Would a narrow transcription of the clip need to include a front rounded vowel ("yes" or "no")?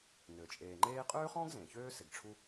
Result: yes